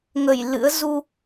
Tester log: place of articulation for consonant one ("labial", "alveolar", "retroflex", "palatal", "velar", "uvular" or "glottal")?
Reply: velar